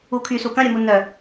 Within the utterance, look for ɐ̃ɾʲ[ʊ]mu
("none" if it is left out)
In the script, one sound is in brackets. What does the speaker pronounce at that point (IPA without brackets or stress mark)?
ʊ